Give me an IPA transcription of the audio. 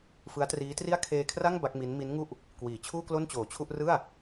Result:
fɯ˦˥a̯triː˦˥tri˥˩a̯ kʰeː˧kʰra˥˩ŋ ba˦˥k̚mi˦˥n mi˦˥nŋu˥˩ʔ | kwiː˨˩ t͡ɕʰuː˥˩klo˥˩nt͡ɕoː˨˩t͡ɕʰu˥˩ʔ rɯ˥˩a̯

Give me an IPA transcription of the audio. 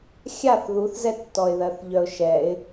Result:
xʲaθ ðuθzɛtːɔɪ̯ ðɜθʎœʊ̯ʃɛɪ̯

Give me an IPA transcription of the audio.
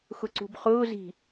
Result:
xʊǀṳbχʊː zi̤

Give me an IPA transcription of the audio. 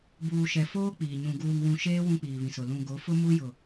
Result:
buː˨ʃɛ˨ foː˦k͡piː˨ɲũ˨ ɡuː˨ŋwũ˨ʃeː˦ wũ˦k͡piː˨βĩ˨sʊ˨ lũ˨ ɡo˨˦fʊ˦mu˦ jʊ˨

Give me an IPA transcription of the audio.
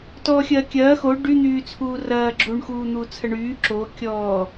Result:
tɔːxʲɐːkʲɐː xo ɖy n̪yːt͡sʰuːrɐː ɡ͡ǁuɳ xuːn̪uːt͡sʰɐɳyː ǁo kʲɔː

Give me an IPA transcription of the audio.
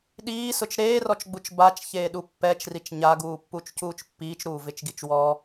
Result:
ɗiːsʊt͡ʃ ɾeːrɔt͡ʃɡ͡but͡ʃ bat͡ʃçeːɗu pːɛt͡ʃrit͡ʃ ɲaɡuːpːut͡ʃcuːt͡ʃ pːiːt͡ʃɾuːvɪt͡ʃɡit͡ʃ wɔ

